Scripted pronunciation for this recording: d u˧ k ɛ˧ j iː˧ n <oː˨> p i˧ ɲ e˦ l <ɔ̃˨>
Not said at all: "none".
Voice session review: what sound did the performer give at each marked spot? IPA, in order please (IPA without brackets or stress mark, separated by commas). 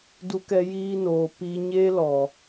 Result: oː˨, ɔ˨